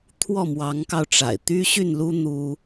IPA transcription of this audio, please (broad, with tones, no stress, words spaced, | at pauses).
t̪ʰwɔ˥˩mwɑ˧˥ŋkɑ˧ʊ̯ʈ͡ʂa̰˨˩ɪ̯ t̪y˥ɕy˥˩nlu˥ n̪u˥